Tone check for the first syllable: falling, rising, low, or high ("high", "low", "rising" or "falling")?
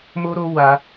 high